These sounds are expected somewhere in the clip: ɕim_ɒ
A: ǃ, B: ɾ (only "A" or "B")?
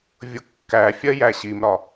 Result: B